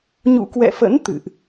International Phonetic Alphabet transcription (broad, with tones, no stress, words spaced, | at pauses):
ɲṵ˧˨kwɛ̰˧˨fə̰˧˥n t̪ɨ̰˧˨ʔ